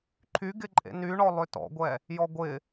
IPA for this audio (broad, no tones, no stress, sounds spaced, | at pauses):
ǃʰ y ɡ ɪ ǃʼ ḛ n y ɳ ɔ lˠ ø t ɔ̰ ɡʷ ɛ | j ɔ ɡʷ ɪ